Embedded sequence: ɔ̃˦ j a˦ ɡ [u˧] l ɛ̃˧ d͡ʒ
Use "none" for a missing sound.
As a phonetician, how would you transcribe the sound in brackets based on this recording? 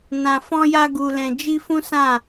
u˧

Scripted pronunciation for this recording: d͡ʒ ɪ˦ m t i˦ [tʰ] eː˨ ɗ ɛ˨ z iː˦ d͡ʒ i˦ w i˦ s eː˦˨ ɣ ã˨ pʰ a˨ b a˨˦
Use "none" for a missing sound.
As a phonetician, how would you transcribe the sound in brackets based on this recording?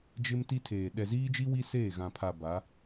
tʰ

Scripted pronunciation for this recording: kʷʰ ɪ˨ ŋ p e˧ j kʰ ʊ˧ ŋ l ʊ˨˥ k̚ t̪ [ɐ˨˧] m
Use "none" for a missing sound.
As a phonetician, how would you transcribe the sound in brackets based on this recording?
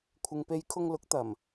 ɐ˨˩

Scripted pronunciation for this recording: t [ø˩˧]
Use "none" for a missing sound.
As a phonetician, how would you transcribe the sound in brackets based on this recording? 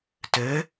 ø˩˧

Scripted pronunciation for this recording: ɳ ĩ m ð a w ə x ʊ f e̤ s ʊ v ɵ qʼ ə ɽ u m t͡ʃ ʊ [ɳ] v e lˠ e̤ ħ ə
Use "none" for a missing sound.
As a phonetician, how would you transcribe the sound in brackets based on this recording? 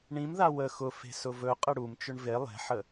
ɳ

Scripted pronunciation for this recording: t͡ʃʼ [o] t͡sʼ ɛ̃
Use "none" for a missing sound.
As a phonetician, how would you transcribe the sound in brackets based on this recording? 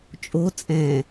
o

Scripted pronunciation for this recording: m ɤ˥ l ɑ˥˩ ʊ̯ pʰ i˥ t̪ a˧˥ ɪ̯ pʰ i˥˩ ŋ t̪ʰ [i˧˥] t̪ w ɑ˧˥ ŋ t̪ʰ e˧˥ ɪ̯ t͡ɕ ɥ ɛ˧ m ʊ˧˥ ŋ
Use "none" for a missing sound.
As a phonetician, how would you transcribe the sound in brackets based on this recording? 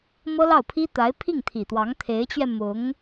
i˨˩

